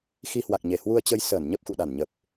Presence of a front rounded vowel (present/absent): absent